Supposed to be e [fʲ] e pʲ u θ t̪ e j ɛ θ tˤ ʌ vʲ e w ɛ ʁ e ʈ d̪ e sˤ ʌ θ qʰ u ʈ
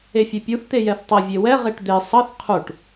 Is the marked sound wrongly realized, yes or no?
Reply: no